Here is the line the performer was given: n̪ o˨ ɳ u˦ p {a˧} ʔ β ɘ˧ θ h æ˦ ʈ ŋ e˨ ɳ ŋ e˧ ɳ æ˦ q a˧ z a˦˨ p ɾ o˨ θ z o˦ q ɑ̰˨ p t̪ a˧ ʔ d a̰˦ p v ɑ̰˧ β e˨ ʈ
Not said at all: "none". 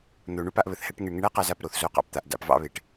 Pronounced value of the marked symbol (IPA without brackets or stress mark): a˧